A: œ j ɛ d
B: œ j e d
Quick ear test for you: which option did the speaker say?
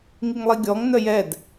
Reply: A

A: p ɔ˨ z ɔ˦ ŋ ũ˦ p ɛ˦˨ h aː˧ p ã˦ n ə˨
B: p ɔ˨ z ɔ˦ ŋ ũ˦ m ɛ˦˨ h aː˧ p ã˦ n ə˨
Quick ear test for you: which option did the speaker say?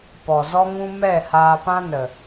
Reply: B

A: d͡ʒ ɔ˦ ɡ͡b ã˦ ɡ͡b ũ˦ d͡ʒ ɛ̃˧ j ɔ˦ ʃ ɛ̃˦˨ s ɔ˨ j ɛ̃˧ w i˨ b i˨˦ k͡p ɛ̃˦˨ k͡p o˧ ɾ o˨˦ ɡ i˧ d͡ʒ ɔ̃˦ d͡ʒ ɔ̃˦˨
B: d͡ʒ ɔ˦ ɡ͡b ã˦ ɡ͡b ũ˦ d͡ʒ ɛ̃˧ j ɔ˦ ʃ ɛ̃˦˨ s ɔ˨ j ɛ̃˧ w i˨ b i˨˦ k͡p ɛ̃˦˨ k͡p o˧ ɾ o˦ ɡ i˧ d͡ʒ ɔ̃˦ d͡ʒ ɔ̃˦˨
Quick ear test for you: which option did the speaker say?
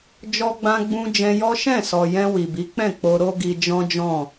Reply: B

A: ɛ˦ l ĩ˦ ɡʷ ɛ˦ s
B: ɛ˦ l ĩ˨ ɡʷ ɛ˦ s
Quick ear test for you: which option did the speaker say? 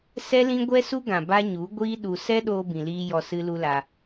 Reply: A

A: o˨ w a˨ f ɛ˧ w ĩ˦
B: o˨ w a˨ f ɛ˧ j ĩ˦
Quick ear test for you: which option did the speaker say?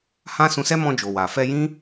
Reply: B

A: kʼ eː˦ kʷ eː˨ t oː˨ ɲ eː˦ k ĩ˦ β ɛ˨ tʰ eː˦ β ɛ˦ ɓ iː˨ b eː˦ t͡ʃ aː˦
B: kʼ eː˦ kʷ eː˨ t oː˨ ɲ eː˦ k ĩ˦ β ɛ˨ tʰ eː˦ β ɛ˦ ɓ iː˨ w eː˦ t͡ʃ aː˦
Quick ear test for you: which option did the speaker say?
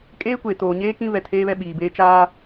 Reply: A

